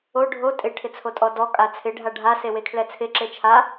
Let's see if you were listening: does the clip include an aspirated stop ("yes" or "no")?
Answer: yes